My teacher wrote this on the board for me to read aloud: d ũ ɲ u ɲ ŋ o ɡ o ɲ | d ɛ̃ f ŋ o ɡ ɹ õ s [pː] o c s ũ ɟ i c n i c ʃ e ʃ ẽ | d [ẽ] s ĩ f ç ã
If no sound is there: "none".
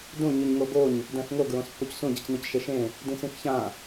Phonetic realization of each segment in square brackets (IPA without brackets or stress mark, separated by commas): pː, ĩ